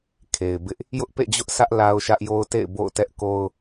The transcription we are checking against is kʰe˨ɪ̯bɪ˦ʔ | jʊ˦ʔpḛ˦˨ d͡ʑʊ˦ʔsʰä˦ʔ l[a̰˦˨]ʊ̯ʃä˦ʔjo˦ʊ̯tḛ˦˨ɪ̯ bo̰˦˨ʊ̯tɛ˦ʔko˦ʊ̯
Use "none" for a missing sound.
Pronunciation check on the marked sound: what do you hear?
a˦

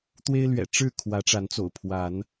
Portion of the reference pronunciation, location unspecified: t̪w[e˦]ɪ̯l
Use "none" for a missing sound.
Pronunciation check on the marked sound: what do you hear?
e˦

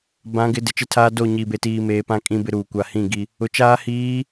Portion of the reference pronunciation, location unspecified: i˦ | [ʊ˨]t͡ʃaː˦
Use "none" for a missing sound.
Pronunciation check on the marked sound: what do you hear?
ʊ˨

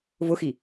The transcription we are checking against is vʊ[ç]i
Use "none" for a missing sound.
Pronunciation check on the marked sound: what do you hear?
x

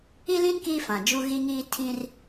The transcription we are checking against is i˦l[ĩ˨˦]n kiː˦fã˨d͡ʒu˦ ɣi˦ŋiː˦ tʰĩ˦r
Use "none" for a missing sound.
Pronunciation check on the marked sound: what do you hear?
ĩ˦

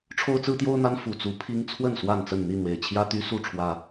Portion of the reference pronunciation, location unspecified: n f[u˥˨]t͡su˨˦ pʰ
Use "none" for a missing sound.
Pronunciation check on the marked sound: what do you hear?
u˨˩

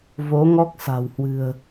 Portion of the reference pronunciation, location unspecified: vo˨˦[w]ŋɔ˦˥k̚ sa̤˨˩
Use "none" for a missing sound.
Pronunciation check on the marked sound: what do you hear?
none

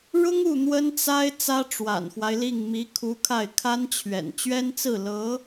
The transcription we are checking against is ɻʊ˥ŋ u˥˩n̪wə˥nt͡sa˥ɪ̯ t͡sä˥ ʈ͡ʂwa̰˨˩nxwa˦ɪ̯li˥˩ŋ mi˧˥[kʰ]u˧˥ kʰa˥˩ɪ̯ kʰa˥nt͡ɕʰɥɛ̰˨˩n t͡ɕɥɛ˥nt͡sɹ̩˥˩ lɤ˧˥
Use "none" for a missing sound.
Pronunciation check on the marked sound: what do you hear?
kʰ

